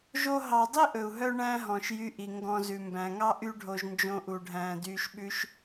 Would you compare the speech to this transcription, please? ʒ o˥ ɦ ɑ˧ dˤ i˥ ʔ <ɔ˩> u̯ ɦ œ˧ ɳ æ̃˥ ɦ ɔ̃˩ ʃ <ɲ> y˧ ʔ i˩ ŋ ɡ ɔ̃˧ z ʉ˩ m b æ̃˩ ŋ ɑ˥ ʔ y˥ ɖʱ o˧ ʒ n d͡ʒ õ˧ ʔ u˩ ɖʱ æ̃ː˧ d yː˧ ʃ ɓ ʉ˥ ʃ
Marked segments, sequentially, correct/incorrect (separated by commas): incorrect, incorrect